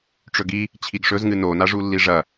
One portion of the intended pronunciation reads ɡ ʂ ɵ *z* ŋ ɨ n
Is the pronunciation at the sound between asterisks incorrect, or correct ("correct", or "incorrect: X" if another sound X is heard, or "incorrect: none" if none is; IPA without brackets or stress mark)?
correct